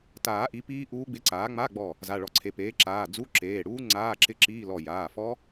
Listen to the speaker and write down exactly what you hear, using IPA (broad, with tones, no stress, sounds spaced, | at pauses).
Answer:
t aː˨˩˦ ʔ i˩˥ p iː˦˥ ʔ uː˦˥ ɡ͡b ɪ˧˥˧ ǀ aː˩˥ ŋ͡m a˧˥˧ ɡ͡b ɔ˧˩ | z a˩˧˩ ɭ ɔ˩˥ ǀʰ e˩˧˩ p eː˩˥ ǁ aː˩˧˩ d͡z u˧˥˧ ǁ eː˩˧˩ ɽ uː˦˥ ŋ͡ǀ aː˧˥˧ ǁ ɪ˦˥ ǁ iː˧˥˧ l ɔ˧˩ j aː˩˧˩ f ɔ˦˥